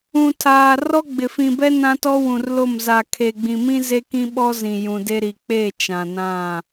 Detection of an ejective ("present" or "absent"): absent